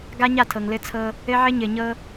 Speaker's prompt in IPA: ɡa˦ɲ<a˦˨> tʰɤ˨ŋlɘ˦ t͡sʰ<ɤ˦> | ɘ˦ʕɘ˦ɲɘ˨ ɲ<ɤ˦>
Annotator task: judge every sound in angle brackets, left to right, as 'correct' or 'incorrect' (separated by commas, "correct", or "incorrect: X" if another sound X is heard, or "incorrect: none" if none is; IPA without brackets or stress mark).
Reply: correct, correct, correct